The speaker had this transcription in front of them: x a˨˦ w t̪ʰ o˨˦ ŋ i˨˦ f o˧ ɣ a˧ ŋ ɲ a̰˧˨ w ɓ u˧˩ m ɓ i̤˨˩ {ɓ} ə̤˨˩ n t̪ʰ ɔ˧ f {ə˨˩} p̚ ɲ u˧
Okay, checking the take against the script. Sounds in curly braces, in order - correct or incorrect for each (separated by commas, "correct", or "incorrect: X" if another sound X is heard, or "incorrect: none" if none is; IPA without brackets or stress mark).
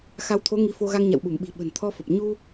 correct, correct